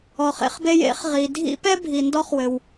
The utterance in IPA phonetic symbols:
ɔ˨χḛ˦χbe˦j ḛ˨˥χʁi˨ dʱḭ˦pɛ˦ bʱi˨ndɔ˦χwɘ˨w

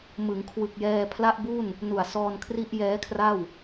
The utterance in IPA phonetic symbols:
mɯ˩˦ŋkʰwɯ˨˩k̚jɛː˧ pʰla˥˩ʔbu˥˩n | nu˨˩a̯sɔː˧n kʰri˥˩ʔjɛː˦˥kʰra˥˩w

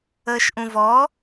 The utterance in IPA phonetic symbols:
əːʃʔũvɔ

